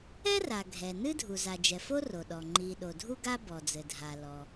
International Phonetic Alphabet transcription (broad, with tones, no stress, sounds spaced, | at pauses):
ɛ˥ r a˩ ɡʱ ɛ˩ n ɨ˥ dʱ u˩ z a˩ d͡ʒ ɛ˩ f o˥ r o˩ ɗ ɔ˩ ŋ͡ǃ i˩ ɗ o˩ dʱ u˥ ɡ a˥ b ɔ˩ d͡z ɘ˩ dʱ a˩ l ɔ˩